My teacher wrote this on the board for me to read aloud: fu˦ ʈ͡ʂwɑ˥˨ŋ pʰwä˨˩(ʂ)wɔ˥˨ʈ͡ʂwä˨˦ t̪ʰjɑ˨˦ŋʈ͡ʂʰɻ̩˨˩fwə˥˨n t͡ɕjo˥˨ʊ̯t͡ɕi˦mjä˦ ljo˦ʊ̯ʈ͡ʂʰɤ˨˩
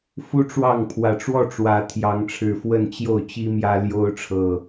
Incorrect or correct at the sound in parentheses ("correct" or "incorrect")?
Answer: incorrect